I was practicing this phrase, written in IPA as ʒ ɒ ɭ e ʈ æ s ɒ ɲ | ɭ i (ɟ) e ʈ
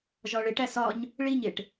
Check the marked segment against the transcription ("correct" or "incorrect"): incorrect